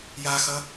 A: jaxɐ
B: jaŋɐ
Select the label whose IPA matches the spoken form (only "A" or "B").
A